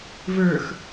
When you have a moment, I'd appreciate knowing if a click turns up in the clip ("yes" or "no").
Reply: no